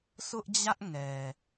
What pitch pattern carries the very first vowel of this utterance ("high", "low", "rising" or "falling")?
high